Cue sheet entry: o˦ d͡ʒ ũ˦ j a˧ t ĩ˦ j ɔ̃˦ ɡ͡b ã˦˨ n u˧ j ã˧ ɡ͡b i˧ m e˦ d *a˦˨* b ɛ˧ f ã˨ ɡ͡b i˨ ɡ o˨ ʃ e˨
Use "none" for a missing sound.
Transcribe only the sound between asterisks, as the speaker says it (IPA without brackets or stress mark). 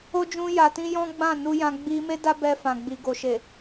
a˦